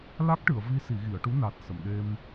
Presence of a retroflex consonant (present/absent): present